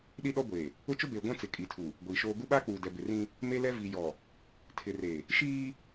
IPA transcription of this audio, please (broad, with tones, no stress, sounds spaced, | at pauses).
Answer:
ɗ i˦ ɗ ɔ˦ ɡʷ eː˨ | ʊ˦ t͡ʃ ʊ˦ b eː˨ ɡʷ ã˦ t͡s ɪ˨ kʼ i˨ tʰ u˨ | ɡʷ iː˨ ʃ oː˦ ɡ u˦ ɓ aː˦ k͡p uː˨ d ɛ˨ b ɪ˨ r ĩ˦ | m e˦ l ɛ˦ v i˨ j ɔ˨ | tʰ ɪ˨ r e˨ | ʃ iː˦